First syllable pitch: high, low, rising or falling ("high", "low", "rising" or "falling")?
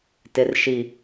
low